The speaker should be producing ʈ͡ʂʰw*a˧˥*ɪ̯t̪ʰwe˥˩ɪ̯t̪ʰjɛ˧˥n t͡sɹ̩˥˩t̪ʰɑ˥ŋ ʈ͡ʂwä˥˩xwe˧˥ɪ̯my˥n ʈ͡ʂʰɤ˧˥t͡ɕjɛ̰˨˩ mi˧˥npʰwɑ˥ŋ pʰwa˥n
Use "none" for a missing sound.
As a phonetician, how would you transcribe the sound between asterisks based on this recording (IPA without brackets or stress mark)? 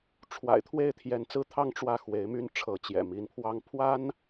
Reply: a̰˨˩